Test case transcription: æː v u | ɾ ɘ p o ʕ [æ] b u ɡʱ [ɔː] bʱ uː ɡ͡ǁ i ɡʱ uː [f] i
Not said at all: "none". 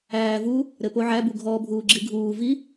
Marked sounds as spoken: æ, ɔː, v

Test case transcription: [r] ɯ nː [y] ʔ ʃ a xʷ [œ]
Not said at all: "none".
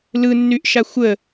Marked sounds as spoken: l, y, ə

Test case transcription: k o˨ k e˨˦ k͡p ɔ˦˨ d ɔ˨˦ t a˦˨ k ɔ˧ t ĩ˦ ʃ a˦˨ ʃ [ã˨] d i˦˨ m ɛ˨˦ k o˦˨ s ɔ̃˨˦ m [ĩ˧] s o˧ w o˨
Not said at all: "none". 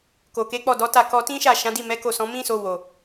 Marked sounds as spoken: ã˨˦, ĩ˦

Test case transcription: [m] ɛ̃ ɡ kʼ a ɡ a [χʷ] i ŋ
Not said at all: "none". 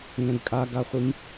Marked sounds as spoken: ŋ, χʷ

